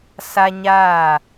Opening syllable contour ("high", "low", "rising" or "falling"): high